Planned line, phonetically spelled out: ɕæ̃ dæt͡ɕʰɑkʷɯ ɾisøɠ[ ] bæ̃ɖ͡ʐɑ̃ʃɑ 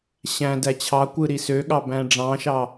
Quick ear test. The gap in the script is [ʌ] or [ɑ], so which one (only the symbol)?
ɑ